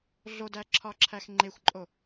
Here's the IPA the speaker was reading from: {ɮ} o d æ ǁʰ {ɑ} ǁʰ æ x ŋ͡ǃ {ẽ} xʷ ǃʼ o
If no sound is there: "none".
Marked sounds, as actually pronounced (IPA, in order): ɮ, ɒ, e

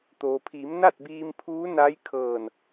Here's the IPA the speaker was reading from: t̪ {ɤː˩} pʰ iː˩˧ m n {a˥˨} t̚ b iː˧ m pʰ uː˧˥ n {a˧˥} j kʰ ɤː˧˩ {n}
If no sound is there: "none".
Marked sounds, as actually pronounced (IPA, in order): oː˩, a˥˨, a˧˥, n

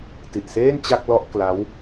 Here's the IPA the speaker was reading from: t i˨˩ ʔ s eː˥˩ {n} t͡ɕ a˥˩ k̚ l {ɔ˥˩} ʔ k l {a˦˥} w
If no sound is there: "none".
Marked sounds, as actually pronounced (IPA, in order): n, ɔ˥˩, a˦˥

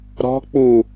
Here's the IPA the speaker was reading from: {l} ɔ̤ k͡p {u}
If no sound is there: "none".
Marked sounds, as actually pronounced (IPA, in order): ɾ, u

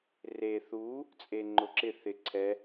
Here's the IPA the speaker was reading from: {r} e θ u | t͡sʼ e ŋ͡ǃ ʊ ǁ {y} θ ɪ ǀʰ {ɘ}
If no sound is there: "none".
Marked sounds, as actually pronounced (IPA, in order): r, ɪ, ɛ

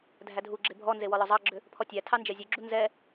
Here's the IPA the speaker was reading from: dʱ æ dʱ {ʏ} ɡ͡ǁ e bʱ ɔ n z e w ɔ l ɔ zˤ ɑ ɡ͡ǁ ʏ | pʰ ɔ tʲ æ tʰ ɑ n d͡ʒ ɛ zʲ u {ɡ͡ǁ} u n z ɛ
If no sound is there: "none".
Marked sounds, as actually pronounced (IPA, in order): u, ɡ͡ǁ

